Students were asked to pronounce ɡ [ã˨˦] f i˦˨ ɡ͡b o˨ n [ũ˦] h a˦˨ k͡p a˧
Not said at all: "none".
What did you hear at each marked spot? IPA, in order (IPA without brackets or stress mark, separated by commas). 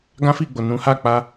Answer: ã˦, ũ˨˦